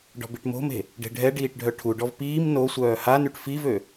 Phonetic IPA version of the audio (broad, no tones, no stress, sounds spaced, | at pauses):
ɖ ɔ̤ b i ʈ m o̤ m e̤ | ɖ e̤ ɖʱ ɛ ɖ iː ʈ ɖʱ œ ʈʰ u ɖ ɔ v p iː m n o sʷ œː h a n y ʈ f i v ø